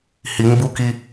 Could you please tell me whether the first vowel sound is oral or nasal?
oral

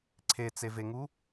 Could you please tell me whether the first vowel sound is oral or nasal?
oral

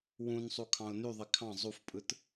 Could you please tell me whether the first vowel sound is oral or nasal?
nasal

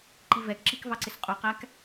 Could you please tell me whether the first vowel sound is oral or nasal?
oral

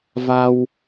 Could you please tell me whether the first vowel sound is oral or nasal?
oral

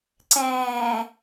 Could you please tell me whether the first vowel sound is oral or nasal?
nasal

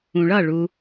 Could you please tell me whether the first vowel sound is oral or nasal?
nasal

